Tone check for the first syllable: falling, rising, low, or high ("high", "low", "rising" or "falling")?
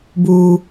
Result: high